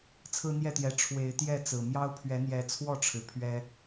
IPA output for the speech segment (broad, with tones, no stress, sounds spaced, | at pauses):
t͡sʰ ɹ̩˦ n̪ j ɛ˥˨ t̪ j ɛ˨˦ ʈ͡ʂʰ w e˨˦ ɪ̯ t̪ j ɛ˥˨ t͡s ɹ̩˨˩ m j ɑ˦ ʊ̯ pʰ ɥ ɛ˨˦ n̪ j ɛ˨˦ t͡sʰ w ɔ˥˨ ʈ͡ʂʰ ɻ̩˩ pʰ ɥ ɛ˦